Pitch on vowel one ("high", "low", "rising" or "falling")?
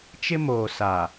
high